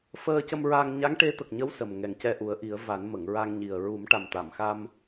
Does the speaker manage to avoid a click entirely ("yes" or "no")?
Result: yes